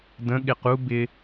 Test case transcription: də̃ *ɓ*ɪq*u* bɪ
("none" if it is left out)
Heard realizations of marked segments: ɠ, u

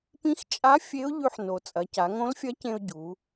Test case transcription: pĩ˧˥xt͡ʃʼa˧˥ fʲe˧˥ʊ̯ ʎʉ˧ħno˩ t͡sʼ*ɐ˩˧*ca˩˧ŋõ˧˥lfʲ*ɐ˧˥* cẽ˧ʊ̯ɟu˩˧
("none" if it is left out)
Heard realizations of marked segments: ɐ˩˧, ɐ˧˥

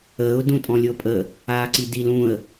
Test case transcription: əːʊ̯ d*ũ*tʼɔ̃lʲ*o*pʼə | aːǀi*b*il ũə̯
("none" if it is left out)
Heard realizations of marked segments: ũ, ɤ, d

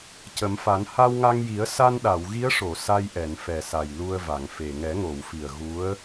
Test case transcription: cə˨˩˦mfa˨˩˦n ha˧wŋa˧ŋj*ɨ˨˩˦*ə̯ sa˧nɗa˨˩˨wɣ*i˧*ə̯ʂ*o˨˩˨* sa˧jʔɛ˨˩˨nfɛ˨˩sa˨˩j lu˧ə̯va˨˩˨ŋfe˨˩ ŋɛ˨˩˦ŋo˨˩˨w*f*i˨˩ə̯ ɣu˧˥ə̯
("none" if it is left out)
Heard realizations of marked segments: i˨˩˦, i˧˥, o˨˩˨, f

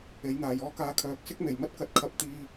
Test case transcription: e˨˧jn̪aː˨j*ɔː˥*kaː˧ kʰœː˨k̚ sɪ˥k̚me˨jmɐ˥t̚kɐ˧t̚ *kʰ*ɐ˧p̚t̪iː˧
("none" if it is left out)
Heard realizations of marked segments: ɔː˥, kʰ

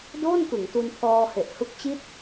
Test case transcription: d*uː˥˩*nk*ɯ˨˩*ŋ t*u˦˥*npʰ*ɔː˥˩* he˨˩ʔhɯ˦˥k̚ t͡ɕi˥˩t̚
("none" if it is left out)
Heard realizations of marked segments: oː˥˩, ɯ˩˦, u˧, ɔː˧

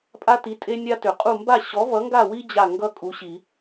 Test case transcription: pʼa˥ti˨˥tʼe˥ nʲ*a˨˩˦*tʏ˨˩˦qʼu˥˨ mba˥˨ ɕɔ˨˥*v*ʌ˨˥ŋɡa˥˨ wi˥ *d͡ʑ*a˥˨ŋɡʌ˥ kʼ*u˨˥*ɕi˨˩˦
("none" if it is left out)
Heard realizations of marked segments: a˥, v, d͡ʑ, u˨˥

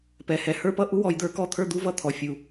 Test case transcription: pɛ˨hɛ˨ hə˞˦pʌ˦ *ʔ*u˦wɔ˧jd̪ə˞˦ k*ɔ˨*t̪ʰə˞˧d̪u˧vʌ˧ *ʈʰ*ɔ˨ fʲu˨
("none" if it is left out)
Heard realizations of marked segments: ʔ, ɔ˧, t̪ʰ

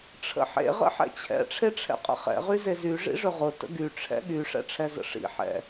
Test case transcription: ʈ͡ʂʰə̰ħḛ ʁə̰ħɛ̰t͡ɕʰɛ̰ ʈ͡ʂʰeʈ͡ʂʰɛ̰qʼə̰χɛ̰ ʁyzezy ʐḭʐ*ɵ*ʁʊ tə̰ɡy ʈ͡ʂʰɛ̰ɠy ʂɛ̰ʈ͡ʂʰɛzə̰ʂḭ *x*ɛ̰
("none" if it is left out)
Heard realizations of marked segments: ɵ, ħ

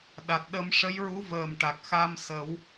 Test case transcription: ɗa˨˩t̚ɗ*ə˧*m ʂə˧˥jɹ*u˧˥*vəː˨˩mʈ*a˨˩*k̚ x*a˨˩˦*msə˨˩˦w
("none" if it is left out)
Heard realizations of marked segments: ə˧, u˧˥, a˨˩, a˧

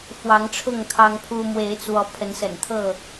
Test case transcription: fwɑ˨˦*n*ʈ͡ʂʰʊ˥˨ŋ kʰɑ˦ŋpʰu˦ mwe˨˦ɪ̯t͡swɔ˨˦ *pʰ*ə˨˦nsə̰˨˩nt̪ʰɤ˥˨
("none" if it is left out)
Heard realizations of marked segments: ŋ, pʰ

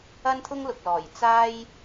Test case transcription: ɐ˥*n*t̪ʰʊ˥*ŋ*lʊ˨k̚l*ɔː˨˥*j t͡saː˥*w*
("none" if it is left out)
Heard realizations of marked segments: n, ŋ, ɔː˨˩, j

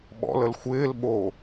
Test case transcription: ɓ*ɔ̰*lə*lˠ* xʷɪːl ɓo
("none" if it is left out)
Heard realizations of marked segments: ɔ̰, l

